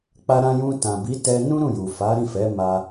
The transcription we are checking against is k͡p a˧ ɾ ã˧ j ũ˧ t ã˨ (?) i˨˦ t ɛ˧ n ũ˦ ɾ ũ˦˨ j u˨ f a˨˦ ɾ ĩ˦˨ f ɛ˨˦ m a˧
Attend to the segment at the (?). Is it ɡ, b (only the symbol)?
b